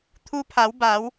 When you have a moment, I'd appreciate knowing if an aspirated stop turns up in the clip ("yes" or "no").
yes